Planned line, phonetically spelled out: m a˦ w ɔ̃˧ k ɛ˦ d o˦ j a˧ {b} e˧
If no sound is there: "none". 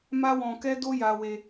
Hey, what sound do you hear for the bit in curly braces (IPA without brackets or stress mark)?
w